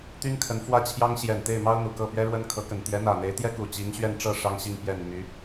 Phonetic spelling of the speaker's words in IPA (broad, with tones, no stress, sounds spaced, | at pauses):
t̪ y˥ n kʰ ə˧˥ n f w ä˥˩ t͡ɕʰ j ɑ˥ ŋ ɕ j ɛ˨˩ n t̪ e˥˩ ɪ̯ m ɑ˥ ʊ̯ n̪ u˨˩ k ɤ˥˩ p ɥ ɛ˥ ɻ w ə˥ n kʰ ɤ˧˥ k ə˨˩ n t̪ j ɛ˧˥ n̪ ä˨˩ n̪ e˧˥ ɪ̯ t̪ j ɛ˥ k u˨˩ t͡ɕ i˧˥ ŋ ɕ ɥ ɛ˥˧ n ʈ͡ʂ ɤ˥˩ ʂ ɑ˥ ŋ ɕ i˥˩ ŋ p j ɛ˨˩ n m y˧˥